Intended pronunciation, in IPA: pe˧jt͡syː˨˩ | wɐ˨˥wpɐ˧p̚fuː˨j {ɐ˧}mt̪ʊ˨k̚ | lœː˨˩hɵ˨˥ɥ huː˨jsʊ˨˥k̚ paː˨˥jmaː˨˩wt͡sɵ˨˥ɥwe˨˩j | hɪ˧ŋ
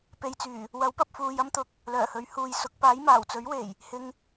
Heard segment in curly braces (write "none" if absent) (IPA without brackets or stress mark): ɐ˥